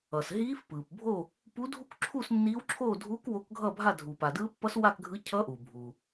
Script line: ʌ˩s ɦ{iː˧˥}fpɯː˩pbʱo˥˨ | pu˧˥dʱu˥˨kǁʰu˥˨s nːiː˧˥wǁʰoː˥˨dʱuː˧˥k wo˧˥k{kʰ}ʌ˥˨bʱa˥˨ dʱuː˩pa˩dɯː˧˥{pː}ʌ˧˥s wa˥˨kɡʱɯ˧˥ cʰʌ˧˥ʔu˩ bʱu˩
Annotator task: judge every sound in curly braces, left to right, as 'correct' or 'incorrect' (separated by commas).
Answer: correct, incorrect, correct